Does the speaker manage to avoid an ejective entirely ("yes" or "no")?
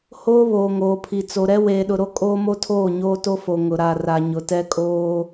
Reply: no